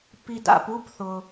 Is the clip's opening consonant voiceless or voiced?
voiceless